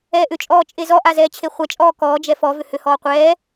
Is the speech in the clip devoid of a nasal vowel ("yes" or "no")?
yes